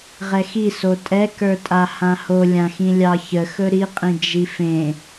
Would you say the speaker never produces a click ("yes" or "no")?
yes